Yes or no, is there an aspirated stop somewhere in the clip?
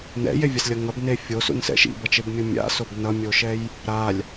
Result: no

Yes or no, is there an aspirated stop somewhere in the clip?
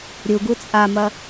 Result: no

